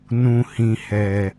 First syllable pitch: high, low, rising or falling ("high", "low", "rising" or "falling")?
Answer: low